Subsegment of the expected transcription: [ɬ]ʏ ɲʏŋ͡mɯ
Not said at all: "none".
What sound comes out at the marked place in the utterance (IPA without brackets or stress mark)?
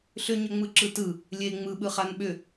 ɬ